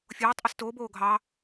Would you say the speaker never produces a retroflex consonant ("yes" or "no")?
yes